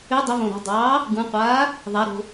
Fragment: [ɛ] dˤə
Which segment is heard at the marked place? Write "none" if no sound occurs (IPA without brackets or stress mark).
ʏ